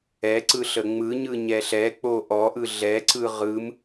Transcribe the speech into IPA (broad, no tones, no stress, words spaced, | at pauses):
ɛǀɯ ɬəŋ͡mɯɲɯ ɲɛɬɛk͡po ʔɔʔɯ ɮɛǀɯ ʁɯm